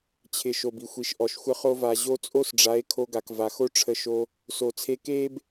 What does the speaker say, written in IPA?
t͡ɕʰ ɪ˨ ʃ o˨ b i˨ xʷ i˨ ʃ ʔ ɔ˨ ʃ xʷ ə˦ χ o˦ v a˧ ʑ o˦ t͡sʼ o˦ s ɖ͡ʐ a˨˦ e̯ kʰ o˧ ɡ a˨ k v a˨ x o˦ ʈ͡ʂʰ ə˧ ʃ o˧ | s o˨ t͡sʰ e˧ k e˦ b

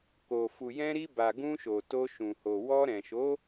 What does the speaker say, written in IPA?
k o˨ f u˨ j ɛ̃˧ ɾ i˧ b a˨ ɡ ũ˧ ʃ o˨ t o˧ ʃ ũ˨ h o˨ w ɔ˧ ɾ ɛ̃˨ ʃ o˨˦

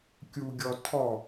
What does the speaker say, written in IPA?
kʲ u ɡʲ ɔ tʰ ɔ

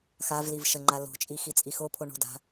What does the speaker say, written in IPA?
x a v l i v ʃ ə ŋ͡ǃ a l o̤ t͡ʃʼ i x i t͡sʼ i x o pʰ o ɳ o̤ d a̤

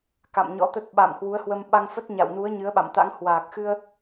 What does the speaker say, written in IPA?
k a̰˧˨ m ɲ ɔ̰˧˥ t̪ ə˦˥ t̚ ɓ a̰˧˨ m h w u˨˦ ə̯ h w ə˧ m ɓ a˧ ŋ f ə˦˥ t̚ ɲ a̰˧˨ w n u˨˦ ə̯ ɲ ɨ˨˦ ə̯ ɓ a̰˧˨ m t̪ a̰˧˥ ŋ h w aː˨˩ k̚ x ɨ˧ ə̯

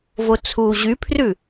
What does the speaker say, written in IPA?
v o t͡sʰ uː ʑ y pʰ r ʉ

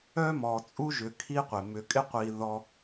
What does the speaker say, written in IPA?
œ˥ m ɔ˨ t͡sʼ u˥ ʒ ʏ˨ kʰ i˥ qʷ ɪ˩ m ʏ˨ kʼ ɪ˦ qʷ i˨ ð ɔ˦

